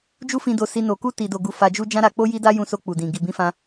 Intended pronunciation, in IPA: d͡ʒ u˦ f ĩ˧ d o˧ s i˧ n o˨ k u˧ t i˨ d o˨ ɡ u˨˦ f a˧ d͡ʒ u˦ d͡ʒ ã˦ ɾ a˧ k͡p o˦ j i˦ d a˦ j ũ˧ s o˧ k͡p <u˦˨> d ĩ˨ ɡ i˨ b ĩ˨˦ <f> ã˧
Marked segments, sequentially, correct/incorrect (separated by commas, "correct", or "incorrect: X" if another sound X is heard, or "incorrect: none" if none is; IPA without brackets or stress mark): incorrect: u˨, correct